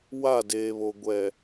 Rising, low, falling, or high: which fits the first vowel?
falling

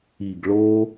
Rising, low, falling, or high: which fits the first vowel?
low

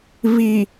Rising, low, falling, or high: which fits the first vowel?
low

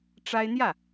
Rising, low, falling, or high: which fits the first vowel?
high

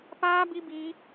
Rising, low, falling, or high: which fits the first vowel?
high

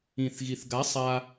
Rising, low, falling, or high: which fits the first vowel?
low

